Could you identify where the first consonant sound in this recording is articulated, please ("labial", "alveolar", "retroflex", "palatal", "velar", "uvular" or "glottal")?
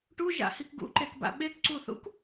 retroflex